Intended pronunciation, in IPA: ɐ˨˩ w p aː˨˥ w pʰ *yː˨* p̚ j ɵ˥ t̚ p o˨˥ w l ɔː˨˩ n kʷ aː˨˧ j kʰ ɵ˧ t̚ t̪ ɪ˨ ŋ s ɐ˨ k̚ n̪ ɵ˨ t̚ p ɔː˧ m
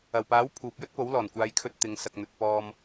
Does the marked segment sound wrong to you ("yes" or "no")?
yes